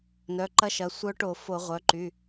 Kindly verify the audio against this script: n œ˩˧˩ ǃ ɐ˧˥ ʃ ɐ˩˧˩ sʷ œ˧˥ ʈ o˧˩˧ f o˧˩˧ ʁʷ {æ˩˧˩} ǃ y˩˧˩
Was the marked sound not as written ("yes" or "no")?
yes